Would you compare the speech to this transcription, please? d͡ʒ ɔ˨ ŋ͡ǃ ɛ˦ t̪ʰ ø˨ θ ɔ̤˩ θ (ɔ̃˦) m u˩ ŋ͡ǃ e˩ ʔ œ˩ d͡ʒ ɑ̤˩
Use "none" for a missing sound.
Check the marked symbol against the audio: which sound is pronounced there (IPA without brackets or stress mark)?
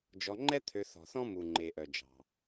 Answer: ɔ̃˦